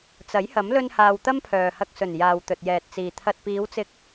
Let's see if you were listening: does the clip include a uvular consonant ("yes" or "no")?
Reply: no